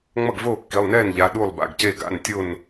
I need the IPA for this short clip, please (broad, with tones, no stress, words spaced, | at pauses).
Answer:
ŋ͡mʌ˥˩ɡvoː˥˩kːi˩˧˩lˠnɛː˥˩n ʎa˩˧˩ ɗu˥˩lˠba̰˩˧˩ɡce˥˩ ɡa̰˩˧˩n tʲo˥˩n